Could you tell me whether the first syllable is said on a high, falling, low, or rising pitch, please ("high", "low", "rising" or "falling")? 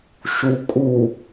low